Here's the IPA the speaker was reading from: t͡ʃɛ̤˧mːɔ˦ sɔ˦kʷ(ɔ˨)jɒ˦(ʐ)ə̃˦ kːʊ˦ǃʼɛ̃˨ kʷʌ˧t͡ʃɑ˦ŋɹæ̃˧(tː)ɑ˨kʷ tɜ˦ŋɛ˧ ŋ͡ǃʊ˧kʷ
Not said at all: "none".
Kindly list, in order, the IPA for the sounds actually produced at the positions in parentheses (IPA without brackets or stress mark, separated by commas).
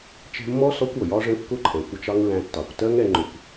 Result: ɔ˨, ʐ, tː